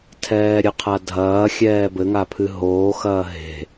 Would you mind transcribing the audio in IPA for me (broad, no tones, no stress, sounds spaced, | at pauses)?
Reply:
tʰ ɛː ɾʲ ɨ qʰ a dʱ ɐː xʲ ɛː b ɘ ŋ a pʰ ɨ ɦ oː x ɐː ɦ e̤